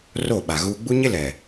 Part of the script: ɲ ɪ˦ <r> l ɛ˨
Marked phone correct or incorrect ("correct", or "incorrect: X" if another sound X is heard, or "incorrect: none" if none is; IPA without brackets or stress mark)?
incorrect: none